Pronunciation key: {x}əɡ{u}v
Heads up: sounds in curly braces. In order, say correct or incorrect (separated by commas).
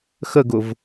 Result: correct, incorrect